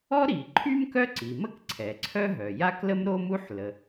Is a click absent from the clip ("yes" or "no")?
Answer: no